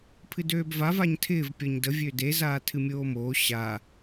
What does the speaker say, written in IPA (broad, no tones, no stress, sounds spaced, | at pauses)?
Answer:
pʰ ɨ d øː b v a v a ɲ tʰ ɪː v pʲ ɔ ɲ d ə vʲ ø d e z aː tʰ ɨ mʲ oː m oː ɕ a